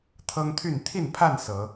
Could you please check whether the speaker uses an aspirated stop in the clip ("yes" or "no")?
yes